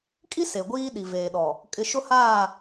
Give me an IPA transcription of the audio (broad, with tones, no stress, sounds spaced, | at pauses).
kʼ i˦ s e˨ ɡʷ iː˦ ɗ i˨ v eː˨ ɗ ɔ˨ | kʼ ɪ˨ ʃ ʊ˦ h aː˦˨